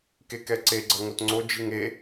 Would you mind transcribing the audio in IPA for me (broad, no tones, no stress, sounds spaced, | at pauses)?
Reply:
k e k ɛ ǀ e ɡ͡ǀ ʌ ŋ o t ŋ͡ǀ o d͡ʒ i ŋ e